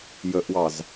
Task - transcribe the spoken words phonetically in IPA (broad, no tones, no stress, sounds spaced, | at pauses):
j ə ʔ w ɑ z